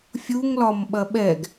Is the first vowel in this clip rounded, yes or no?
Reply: yes